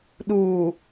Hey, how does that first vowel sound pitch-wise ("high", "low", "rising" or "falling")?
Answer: low